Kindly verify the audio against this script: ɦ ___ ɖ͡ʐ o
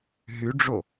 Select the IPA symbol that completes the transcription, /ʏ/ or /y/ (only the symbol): y